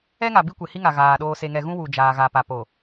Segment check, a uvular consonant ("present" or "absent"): absent